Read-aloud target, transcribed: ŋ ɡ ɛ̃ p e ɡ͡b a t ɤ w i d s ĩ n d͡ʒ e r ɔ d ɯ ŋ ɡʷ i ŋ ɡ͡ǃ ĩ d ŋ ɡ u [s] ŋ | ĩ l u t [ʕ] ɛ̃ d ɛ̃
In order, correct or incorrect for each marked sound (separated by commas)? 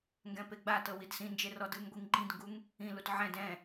incorrect, correct